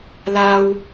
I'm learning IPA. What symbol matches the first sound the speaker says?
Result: l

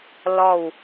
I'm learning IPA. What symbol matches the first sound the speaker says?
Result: l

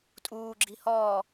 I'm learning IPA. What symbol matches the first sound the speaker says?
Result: tʼ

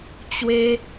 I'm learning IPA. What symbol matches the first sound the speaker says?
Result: t͡ɕ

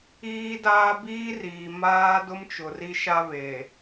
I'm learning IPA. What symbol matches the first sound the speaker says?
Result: iː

